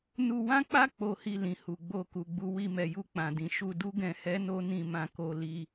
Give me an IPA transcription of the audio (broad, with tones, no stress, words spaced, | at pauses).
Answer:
nu˧wã˦k͡pa˦ k͡po˧hi˧ lĩ˨ hu˨ɡ͡bo˧ku˨ɡ͡bu˧ wi˧mɛ˨ju˧ k͡pã˨dĩ˨ ʃu˧ du˦ɡɛ̃˧ hɛ˦no˦ nĩ˧ mã˧ko˧ li˧